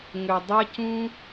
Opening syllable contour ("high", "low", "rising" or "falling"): low